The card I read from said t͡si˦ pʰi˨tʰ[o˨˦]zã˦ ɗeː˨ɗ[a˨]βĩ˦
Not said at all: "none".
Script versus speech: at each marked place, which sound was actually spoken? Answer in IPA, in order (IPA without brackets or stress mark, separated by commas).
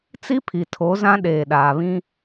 o˨˦, aː˨